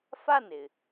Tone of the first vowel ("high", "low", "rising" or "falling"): falling